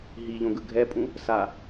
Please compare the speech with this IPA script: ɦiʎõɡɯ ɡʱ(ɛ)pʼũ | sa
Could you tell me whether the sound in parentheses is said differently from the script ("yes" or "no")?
no